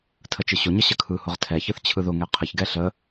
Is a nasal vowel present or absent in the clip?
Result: absent